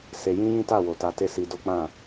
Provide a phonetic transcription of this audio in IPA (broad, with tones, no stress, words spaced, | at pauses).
se˧ jĩ˦jĩ˦ ta˦˨wo˨ta˧ te˦si˧ do˦k͡pã˦˨